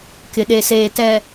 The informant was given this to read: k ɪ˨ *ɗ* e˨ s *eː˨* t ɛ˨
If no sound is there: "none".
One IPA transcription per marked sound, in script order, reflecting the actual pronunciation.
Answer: ɗ, eː˨

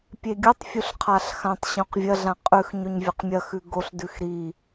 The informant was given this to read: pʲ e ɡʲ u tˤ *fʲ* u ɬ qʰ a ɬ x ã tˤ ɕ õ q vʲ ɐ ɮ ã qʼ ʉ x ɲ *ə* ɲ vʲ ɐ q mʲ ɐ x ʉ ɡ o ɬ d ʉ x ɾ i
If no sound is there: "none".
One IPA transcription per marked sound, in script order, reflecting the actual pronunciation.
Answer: fʲ, ɵ

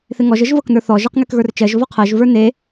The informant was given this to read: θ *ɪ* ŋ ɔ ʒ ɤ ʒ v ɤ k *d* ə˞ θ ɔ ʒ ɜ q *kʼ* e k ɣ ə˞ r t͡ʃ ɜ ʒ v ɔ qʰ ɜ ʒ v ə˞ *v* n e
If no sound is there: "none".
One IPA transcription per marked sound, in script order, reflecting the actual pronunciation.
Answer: ɪ, n, ŋ, none

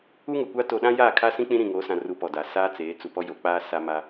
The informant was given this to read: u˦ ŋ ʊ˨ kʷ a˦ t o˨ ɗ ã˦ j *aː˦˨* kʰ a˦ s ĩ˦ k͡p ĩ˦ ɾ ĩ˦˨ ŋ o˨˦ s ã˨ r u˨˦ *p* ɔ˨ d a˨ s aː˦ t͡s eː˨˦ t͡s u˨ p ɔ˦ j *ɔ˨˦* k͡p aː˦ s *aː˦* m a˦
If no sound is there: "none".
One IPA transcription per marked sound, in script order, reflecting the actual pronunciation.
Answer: aː˦˨, p, o˨˦, a˦

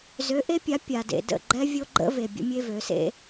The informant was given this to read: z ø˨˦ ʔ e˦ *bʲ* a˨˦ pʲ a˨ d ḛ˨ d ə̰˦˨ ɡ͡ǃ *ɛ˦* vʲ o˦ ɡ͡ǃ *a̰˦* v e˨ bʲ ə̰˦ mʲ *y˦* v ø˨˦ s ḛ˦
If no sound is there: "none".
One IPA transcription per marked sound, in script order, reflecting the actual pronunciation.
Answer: pʲ, ɛ˦, ə̰˦, e˦

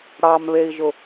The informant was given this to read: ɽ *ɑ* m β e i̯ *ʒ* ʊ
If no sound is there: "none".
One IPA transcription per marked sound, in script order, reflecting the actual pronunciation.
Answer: ɑ, ʒ

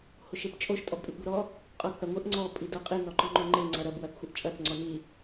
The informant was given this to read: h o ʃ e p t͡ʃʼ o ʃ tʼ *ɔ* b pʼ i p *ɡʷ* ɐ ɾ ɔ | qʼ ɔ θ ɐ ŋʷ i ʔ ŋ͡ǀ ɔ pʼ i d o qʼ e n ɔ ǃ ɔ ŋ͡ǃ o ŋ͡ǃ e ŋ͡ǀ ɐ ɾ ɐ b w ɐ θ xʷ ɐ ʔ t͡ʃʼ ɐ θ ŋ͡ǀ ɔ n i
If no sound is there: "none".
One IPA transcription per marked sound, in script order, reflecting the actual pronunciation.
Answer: ɔ, ɡʷ

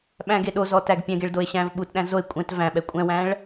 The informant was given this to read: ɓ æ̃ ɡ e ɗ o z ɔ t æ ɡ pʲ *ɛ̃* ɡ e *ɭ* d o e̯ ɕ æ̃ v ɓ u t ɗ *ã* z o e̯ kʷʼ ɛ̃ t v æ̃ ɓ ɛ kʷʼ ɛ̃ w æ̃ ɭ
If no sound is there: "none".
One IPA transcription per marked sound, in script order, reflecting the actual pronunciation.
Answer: ɛ̃, ɭ, æ̃

